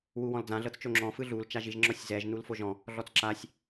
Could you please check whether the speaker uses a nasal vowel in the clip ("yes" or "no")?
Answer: yes